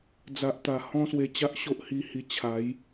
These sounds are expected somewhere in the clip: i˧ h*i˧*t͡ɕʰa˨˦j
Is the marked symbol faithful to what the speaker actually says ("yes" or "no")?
yes